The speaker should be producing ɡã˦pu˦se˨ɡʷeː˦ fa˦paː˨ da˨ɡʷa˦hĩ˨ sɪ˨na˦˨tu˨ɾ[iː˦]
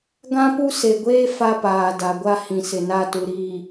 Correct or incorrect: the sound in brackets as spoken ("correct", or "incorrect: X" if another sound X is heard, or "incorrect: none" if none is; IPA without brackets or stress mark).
incorrect: iː˨